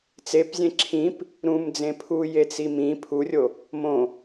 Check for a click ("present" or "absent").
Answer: present